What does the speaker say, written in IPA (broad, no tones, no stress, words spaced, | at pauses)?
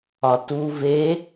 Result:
ɒtu ve